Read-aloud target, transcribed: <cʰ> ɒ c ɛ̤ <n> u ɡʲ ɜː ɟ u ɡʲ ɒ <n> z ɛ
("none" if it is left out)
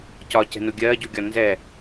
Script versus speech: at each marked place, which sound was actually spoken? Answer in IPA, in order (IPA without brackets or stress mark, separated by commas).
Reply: c, n, n